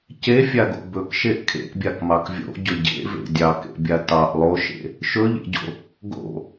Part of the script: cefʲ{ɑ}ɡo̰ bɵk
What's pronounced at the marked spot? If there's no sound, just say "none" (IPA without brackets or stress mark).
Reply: a